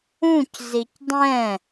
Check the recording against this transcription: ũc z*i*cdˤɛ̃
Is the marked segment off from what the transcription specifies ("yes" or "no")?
no